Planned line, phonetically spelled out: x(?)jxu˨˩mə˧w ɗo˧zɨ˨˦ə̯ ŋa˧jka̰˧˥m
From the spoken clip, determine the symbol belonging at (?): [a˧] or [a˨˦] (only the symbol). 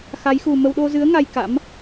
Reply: a˨˦